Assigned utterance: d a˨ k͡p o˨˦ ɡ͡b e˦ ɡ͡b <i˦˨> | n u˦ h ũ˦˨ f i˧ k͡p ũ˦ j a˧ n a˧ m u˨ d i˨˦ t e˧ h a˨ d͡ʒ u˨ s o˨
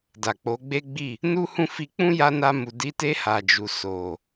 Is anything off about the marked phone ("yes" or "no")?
no